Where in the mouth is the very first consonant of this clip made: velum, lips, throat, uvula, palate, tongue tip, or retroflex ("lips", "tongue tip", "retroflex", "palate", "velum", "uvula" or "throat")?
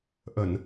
throat